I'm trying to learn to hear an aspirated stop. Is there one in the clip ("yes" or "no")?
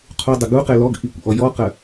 yes